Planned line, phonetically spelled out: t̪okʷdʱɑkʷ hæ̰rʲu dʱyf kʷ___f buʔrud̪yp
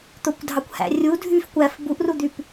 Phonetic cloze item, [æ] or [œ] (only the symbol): æ